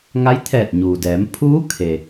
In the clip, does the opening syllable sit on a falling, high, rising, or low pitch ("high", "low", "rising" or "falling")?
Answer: rising